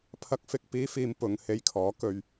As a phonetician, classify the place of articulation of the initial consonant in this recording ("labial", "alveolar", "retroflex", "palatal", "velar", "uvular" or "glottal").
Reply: labial